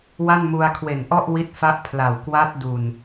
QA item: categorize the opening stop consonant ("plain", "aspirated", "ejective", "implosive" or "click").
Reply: aspirated